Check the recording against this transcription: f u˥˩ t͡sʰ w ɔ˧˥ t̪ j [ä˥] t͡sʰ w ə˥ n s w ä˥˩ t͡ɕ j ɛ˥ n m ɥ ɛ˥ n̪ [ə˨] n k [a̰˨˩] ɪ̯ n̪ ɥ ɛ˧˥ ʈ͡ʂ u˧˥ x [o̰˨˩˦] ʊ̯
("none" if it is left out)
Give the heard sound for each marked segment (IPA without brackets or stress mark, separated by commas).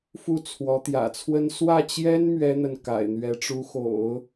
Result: ä̰˨˩, ə˨, a̰˨˩, o̰˨˩˦